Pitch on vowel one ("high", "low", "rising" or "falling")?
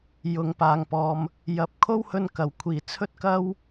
low